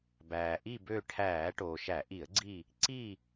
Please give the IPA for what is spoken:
b æː˩ ʔ i˦˨ b ø˦˨ ʈʰ æː˧˩˧ ʈ oː˩ ʃ æ˧˩˧ ʔ i˧˩˧ ə̯ ɡ͡ǀ i˦˨ | ǀ i˦˨

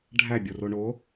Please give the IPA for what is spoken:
ɖʱ æ bʲ o r o ɳ o

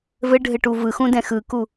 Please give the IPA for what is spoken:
v ɘ ɖʱ ɘ ʈ u v ɯ x ũ d ɛ̃ x ɯ k u

